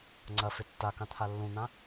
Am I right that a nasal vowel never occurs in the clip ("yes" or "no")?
no